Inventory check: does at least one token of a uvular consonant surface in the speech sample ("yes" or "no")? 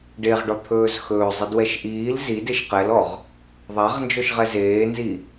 yes